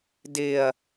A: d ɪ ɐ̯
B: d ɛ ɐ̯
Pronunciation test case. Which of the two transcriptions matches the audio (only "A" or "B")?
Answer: A